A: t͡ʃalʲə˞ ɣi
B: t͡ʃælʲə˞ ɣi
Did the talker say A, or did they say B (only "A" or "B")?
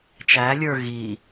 B